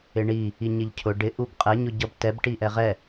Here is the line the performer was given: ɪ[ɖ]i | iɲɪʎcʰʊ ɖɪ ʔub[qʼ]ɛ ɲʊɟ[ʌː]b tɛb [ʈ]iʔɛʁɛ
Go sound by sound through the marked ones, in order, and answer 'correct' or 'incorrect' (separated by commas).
incorrect, correct, incorrect, correct